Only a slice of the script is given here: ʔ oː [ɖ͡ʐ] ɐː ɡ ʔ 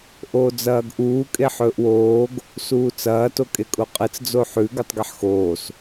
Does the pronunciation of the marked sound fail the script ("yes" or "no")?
yes